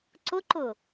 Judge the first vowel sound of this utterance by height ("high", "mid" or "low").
high